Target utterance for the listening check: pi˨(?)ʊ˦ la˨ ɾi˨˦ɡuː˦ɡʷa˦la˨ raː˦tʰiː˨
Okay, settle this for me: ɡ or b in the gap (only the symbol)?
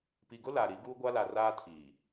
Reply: ɡ